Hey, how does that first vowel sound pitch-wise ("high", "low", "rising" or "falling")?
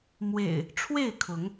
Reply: low